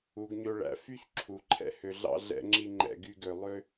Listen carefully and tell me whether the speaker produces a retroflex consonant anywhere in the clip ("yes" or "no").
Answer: yes